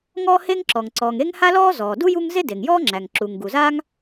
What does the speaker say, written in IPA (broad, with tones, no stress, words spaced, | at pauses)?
ŋɔː˥he˥ŋǁɔ˩ŋ ǀɔː˩ŋe˥ŋ ha˥lɔː˥zɔː˩du˥ ju˥ŋ ze˥de˩ŋjɔː˥ŋ͡ǁæ˩ŋ ǁu˩ŋɡu˩zaː˥ŋ